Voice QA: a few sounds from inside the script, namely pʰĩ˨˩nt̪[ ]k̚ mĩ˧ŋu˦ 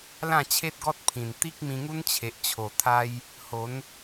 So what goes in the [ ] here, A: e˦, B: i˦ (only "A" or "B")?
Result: B